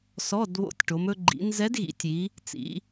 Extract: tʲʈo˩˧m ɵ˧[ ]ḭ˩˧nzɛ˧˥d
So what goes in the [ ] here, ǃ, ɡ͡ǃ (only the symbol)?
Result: ɡ͡ǃ